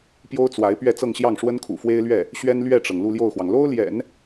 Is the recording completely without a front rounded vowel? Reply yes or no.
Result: yes